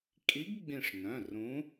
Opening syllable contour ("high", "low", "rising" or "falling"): rising